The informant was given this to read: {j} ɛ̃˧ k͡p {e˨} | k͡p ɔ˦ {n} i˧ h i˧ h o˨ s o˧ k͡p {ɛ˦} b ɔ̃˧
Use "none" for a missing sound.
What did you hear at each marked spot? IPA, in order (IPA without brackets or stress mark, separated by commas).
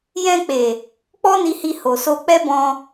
j, e˨, n, ɛ˦